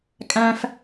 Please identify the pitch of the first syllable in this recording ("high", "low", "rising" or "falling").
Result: high